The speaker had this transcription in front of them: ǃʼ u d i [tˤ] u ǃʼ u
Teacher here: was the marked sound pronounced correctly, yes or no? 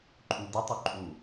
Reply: yes